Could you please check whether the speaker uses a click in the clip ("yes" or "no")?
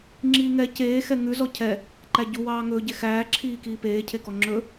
yes